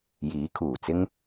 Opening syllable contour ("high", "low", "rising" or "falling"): rising